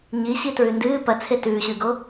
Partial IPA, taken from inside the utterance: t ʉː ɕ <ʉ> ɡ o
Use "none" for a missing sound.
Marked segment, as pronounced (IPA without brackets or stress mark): ʉ